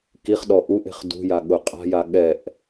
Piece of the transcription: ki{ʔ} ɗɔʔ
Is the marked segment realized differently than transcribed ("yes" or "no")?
yes